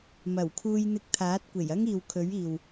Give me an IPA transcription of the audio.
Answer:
m ɐ˨˩ w kʰ uː˧ j n̪ ɪ˧ k̚ t̪ʰ aː˨˥ t̚ kʷ e˨˩ j ɐ˥ ŋ iː˨ w kʰ ɵ˨˥ ɥ iː˨ w

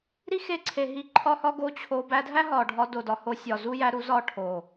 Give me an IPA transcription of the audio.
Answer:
ɾ i˦ x e˧ ǀʰ e˨ ɦ i˧ ǃʰ ɒ˦ h ɒ˦ ɡ o˦ t͡ɕʰ o˧ b æ˧ dʱ æ˦ ɦ ɒ˨ ɖʱ ɒ˧ d o˨ d ɒ˨ h o˧ sʲ ɒ˨ z u˦ j æ˦ ɾ u˦ z ɒ˦˨ ʈʰ o˨

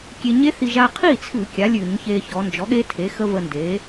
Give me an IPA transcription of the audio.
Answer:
kʲ e˧ ɲ e˦˥ θ i˧ ʒ a˧ qʰ i˥˩ t͡sʰ ʉ˧˩˧ kʲ a˩˥ lʲ ʉ˧˩˧ ɲ ç e˧ ç ɔ˩˧ n d͡ʒ ɔ˩˥ ɠ e˦˥ tʰ e˩˥ x ə˦˥ v ə˧ n d e˩˥

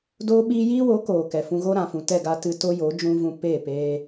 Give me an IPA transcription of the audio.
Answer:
d oː˦ ɓ iː˦ j iː˦ w oː˨˦ k oː˨ k ɛ˨ f ũ˧ ɣ o˦ ɾ ã˨ f ũ˨ t ɛ˦˨ ɡ a˧ t ɨ˧ t o˦ j o˨˦ d͡ʒ ũ˦ v ũ˧ p eː˦˨ p eː˧

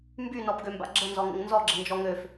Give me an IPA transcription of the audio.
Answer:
m b y n ɔ b ɡ ø m b a̰ ɡ͡ǁ ə n z ɔ ŋ ə̰ ŋ n z ɔ ɡ͡ǁ ə n d͡ʒ ɔ ŋ ø f

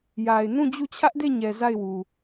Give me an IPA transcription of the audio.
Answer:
j a˨ ɪ̯ n ũ˦˨ d͡ʑ u˦˨ t͡ɕʰ ä˦ ʔ d e˦˨ ɲ ɛ˨ z a˦˨ ɪ̯ w u˨

